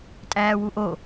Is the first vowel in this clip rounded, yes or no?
no